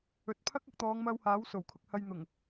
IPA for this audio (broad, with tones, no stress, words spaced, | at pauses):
ɵ˨˥t̚ pʰɐ˥k̚ɐ˧k̚ t̪ɔː˨˧ŋmɐ˧w haː˨˥w so˨˩wkʰʊ˧k̚hɐ˧jn̪ʊ˨˩ŋ